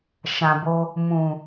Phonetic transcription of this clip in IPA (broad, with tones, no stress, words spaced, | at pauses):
ʃã˨bo˧ | mũ˨